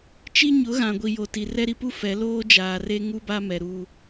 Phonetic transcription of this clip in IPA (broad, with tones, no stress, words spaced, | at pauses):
t͡ʃi˦ɲʊ˨˦ɣã˨ ɡʷi˨jo˨ti˨ rɛ˦ɾi˦pu˦ fɛ˨˦ loː˦d͡ʒaː˨re˦ ŋu˦ba˦mɛ˨ ɾu˦